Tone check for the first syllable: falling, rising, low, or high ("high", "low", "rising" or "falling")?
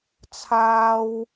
high